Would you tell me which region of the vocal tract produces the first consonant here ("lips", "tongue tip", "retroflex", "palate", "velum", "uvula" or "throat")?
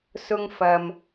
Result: tongue tip